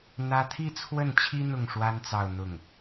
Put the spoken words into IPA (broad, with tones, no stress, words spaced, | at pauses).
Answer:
n̪ä˥ t̪ʰi˥˧t͡sʰwə˥˩nt͡ɕʰi˥ n̪ʊ˥˩ŋʂwa˥n t͡sɑ˥˧ʊ̯n̪ʊ˥˩ŋ